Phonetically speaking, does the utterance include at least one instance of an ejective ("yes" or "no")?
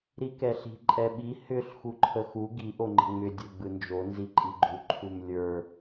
yes